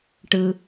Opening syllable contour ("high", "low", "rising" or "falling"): low